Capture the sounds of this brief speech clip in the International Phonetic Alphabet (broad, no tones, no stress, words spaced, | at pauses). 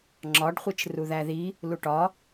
ŋ͡ǁɒɖχʷit͡ʃ ruðæði | luʈɒ